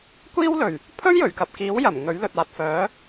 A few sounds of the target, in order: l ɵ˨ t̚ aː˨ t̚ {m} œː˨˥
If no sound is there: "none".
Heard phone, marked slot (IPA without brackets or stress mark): f